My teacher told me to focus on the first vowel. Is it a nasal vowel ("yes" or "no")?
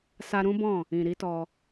no